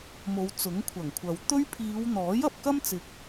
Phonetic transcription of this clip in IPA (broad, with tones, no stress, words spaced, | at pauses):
mo˨˧wt͡sʊ˨˥ŋkʷʰɐ˨˩ŋkʷʰɐ˨w t̪ɵ˥ɥ pʰiː˨˧wn̪ɔː˨˥j ɐ˨p̚kɐ˥mt͡sɪ˨k̚